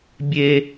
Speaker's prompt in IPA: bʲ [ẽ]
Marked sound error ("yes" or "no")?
yes